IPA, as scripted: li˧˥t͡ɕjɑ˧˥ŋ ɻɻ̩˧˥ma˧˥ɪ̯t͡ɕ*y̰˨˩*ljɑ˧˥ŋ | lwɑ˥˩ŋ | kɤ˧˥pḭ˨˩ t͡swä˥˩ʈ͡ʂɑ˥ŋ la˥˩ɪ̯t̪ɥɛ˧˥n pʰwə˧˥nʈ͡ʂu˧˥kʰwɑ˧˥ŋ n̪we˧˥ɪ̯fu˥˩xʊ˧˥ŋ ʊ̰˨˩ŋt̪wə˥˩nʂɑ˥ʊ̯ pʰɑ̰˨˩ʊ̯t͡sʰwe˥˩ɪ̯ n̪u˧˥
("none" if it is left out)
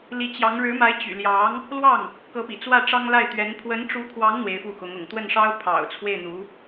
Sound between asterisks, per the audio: y̰˨˩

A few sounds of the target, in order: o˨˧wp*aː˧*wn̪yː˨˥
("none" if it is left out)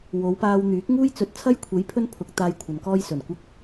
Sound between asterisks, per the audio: aː˧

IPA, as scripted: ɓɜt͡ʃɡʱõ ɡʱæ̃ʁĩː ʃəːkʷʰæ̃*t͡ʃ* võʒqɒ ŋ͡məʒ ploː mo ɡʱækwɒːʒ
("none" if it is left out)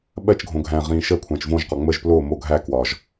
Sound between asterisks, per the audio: t͡ʃ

